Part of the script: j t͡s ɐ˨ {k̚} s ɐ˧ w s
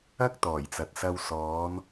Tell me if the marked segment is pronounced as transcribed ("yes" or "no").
no